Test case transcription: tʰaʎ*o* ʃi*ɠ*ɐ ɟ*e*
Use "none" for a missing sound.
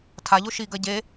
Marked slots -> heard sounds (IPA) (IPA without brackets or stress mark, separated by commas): o, ɡ, e